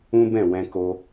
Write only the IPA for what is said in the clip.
ũ˦ b ɛ̃˦˨ w ɛ̃˧ k o˧

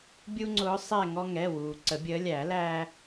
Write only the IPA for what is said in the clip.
bʲ u˦ ŋ͡ǀ ʊː˨˦ sˤ ɛ˦˨ ŋ ɔ˦ ŋ ɛ˩˧˩ w uː˩ ǀ ə˨˩˦ bʲ əː˨˦ lʲ æ˨˩˦ l æ˦

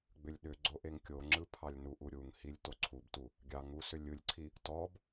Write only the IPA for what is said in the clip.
ɡ͡b ʏ lʲ ɗ ʏ ɡ͡ǀ o ʔ e ŋ kʲ o ŋ͡ǁ ɯ pʰ ɑ lʲ n u ʔ u ɾʲ u ŋ h i lʲ t o ǀʰ u b t u | ɡʲ ɑ ŋ u s ʏ lʲ ɯ lʲ ǀʰ i | t ɔ b

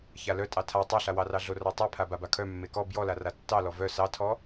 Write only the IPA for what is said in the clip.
ç a l œ tʼ ɑ tʰ a tˤ a ɬ a w ɑ r ɑ ɮ o r ɑ tˤ e pʰ a b a b a kʰ œ mː e k ɔ b j ɔ l a r a tː ɑ l ɔ v œ s ɑ tʰ ɔ

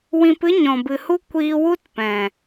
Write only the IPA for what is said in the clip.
w ĩ˧ p ɨ˦ ɲ ɔ̃˨ b ɨ˨ h u˦ kʷ iː˧ w u˦ t p ɛ̃˨

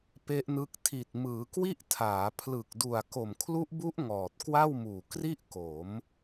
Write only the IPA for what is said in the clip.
p e˦˥ ʔ n ɯ˦˥ k̚ tʰ i˨˩ t̚ m ɯː˩˦ k w i˥˩ ʔ tʰ aː˩˦ pʰ l ɯ˨˩ k̚ d u˨˩ a̯ k o˨˩ m kʰ l u˦˥ ʔ b u˦˥ ʔ ŋ ɔː˨˩ t̚ k w a˥˩ w m uː˨˩ k r i˥˩ ʔ k o˩˦ m

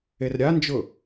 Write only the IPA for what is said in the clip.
e r ɾʲ a n d͡ʒ ʊ

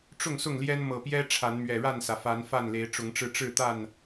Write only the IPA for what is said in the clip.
ʈ͡ʂ ʊ˥˨ ŋ s ʊ˥˨ ŋ l j ɛ˦ n m ɤ˨˩ p j ɛ˦ ʈ͡ʂʰ a˨˦ n m ɥ ɛ˨˩ ɻ a˥˨ n s ä˩ f a˨˦ n f a˥˨ n l e˨˦ ɪ̯ ʈ͡ʂ ʊ˨˦ ŋ ʈ͡ʂ ɻ̩˧ ʈ͡ʂ ɻ̩˥˨ t̪ a˥˨ n

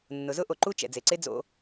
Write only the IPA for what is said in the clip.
nː ʊ˩ z ʊ˥ ʔ o˩ ǃ u˦ t͡ʃ ɛ̰˩ d͡z e˩ ǀ e˥ d͡z o̰˨

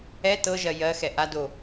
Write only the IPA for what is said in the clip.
ɛ t ɤ ʒ ɜ j ɜ x ɛ ʔ a d o

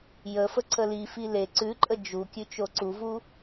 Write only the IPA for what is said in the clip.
j ə f ə ǀ ə l i f i l e ǀ ʉ ǃʼ ə d͡ʒ u kʲ ʉ t͡ʃ o ǀ u v u

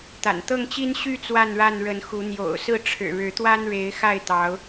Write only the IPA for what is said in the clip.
t̪ a̰˨˩ n t̪ ɤ˥˨ ŋ t͡ɕ i˦ n ɕ y˥˨ t͡s w a˥˨ n ɻ a˥˨ n ɻ ə˨˦ n x u˨˦ n̪ j o̰˨˩ ʊ̯ s ɹ̩˥˨ ʈ͡ʂʰ ɻ̩˨˩ ɻ ɻ̩˨˦ t̪ w a˦ n ɻ e˨˦ ɪ̯ x a˥˨ ɪ̯ t̪ ɑ˨˦ ʊ̯

